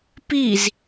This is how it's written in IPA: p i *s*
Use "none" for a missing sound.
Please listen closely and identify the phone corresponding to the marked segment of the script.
z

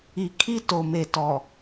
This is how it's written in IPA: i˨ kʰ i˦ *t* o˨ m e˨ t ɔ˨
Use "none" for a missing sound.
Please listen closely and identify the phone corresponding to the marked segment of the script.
t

